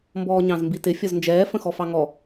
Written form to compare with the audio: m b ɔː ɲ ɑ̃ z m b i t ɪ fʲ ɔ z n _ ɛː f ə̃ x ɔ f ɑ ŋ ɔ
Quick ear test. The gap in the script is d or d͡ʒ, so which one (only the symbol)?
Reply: d͡ʒ